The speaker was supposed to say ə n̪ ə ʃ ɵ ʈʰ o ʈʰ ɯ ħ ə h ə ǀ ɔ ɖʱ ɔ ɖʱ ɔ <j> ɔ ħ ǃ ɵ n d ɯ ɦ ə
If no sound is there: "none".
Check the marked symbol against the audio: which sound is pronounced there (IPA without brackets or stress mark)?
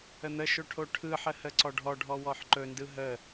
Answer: w